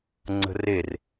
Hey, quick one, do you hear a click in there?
yes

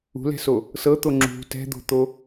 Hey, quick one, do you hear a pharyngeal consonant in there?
no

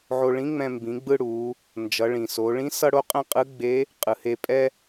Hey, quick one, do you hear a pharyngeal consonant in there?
yes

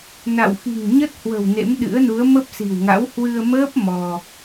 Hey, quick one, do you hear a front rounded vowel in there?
no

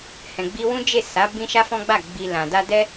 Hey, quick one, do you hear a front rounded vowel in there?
no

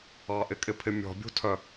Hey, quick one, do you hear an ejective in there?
yes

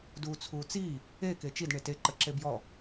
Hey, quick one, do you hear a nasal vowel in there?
no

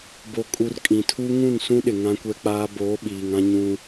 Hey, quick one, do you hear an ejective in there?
yes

